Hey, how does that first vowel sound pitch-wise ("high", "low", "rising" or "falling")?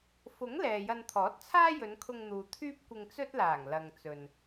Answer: rising